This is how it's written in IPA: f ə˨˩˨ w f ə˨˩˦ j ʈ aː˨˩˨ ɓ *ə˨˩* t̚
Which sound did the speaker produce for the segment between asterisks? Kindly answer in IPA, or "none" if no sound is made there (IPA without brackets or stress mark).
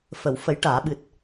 ɨ˨˩